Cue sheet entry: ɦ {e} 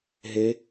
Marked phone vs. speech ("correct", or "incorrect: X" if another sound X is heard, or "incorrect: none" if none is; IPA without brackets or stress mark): correct